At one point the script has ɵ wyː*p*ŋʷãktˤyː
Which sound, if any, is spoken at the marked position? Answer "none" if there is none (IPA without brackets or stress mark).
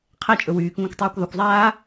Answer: k